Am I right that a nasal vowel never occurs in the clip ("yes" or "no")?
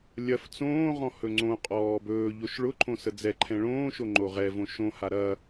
no